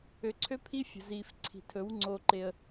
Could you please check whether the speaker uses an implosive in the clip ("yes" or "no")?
no